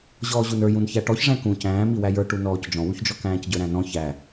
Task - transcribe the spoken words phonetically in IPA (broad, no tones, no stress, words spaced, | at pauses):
ʑɔːʑunə˞ jũnçæʈɔç ʐæ̃kũ cæ̃ːmiwæ jə˞ʈu nɔːcd͡ʒɔ̃wuçd͡ʒɔ kæ̃ːcɟə˞ɾæ̃nɔ̃ çæ